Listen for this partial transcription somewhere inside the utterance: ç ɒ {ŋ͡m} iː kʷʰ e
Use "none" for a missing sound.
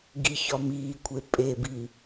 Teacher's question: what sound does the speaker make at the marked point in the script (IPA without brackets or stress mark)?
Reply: m